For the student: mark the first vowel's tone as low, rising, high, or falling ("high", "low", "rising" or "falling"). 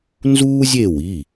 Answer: high